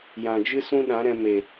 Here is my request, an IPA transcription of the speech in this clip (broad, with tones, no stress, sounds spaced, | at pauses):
j ã˨ d͡ʒ ɨ˦ s ũ˦ ɗ ã˨˦ ɾ ɛ̃˧ m e˨